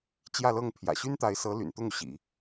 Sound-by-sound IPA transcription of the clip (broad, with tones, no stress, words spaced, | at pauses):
t͡ɕjä˥˧lɤ˥˩ŋ pʰjä̰˨˩ɕy˥nt̪a˧˥ɪ̯sɤ˧˥ ly̰˨˩nt̪ʊ˥˩ŋu˩ ɕḭ˨˩˦